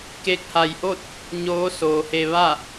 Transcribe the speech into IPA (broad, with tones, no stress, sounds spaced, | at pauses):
k e˧ k̚ h a˧˩ j ʔ o˥˨ t̚ | ɲ oː˧˥ s oː˩˧ h e˧ ʋ a˥˨